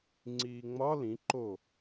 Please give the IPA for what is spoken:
ŋ͡ǀ iː ŋ͡m ɒ l ĩ ǃ o

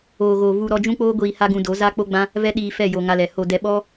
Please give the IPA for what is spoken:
oː˨ ɣ o˨ v u˧ ɾ ɔ˧ d͡ʒ ũ˦ k͡p oː˦ ɡʷ iː˧ h a˦ ɡ ũ˧ d o˨˦ z a˦ k͡p o˦ ɡ͡b ã˦ | v ɛ˦ ɗ iː˧ f ɛ˦˨ j o˧ ŋ a˧ l ɛ˨ h o˧ d ɛ˧ ɓ ɔ˦

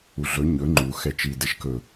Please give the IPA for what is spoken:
u ɮ ɵ ɲ ɵ ŋ͡ǃ u x ɛ t͡ʃ i d ɛ ʃ k ɵ

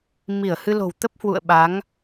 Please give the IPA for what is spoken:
m i˧˩ ə̯ h ɨ˧ l o̤˨˩ w t̪ ə˦˥ p̚ h w ṵ˧˨ ə̯ ɓ a˨˦ ŋ

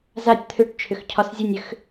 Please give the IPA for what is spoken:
z a tʲ t̪ʰ ʏ ʈ t͡ʃʰ ʏ x cʰ ɒ s zʲ ɯ nʲ ʏ x

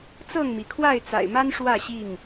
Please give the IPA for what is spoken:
t͡s ɤ˥˨ ŋ m i˩ kʰ w a˥˨ ɪ̯ t͡s a̰˨˩ ɪ̯ m a˦ n ʂ w ä˥˨ ɕ i˥˨ ŋ

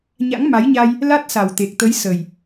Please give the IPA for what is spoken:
ɲ a̰˧˥ ŋ m a˨˦ j ɲ a˧ j | l a˦˥ t̚ s a˨˩ w t̪ e˨˩ k̚ t̪ ə˨˦ j s ə˨˩ j

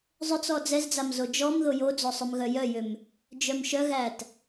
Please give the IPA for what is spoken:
zˤ ʏ t͡s ɔ d͡z ɛ z d͡z a m z o d͡ʒ ɔ m ð o j o d͡z o sˤ ʏ m ɣ œ j œ j ʏ m | d͡ʒ œ m ʃ œ ɣ æ t

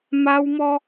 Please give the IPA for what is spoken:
m a˦ w m ɔ˦

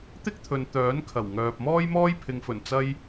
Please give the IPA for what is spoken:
t̪ ɪ˥ k̚ t̪ʰ ɵ˨ n t̪ œː˨˥ n kʰ ɐ˨˩ w ŋ œː˧ p̚ m ɔː˥ j m ɔː˥ j pʰ ɪ˨˧ ŋ f ɵ˨˩ n t͡s ɐ˥ j

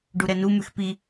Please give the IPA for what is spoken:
ɖ u ɾ ɛ n u m ʉ x p i

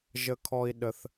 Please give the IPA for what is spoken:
ʒ ə˦ kʰ ɔ˦ i̯ ɗ ə˧ θ

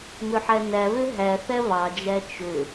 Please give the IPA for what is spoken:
m ø ħ æ n æ β ø ɦ æ θ æ β ɑ d͡ʒ æ t͡ʃ ø

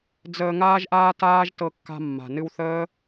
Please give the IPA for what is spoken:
d͡z əː˧ ŋ aː˦ ʒ ʔ aː˦ t aː˦ ʒ t ɤ˧ kː a̤˧ mː a̤˨ n ɨ˧ w θ əː˦

